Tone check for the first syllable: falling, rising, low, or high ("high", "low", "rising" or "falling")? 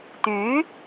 rising